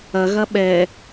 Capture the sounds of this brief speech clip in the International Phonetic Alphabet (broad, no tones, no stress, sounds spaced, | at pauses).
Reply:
ɐ ɣ ɐ ɓ ɛ